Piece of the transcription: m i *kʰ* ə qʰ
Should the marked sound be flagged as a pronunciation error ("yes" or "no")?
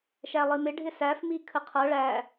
no